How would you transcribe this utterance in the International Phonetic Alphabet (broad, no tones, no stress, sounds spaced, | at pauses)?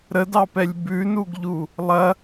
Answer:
ɾ ə d ɑ p ɛ lʲ b ʉ n u ɡ ʎ u | lˠ ɐ